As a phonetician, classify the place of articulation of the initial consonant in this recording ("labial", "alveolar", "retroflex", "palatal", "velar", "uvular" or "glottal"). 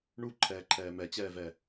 retroflex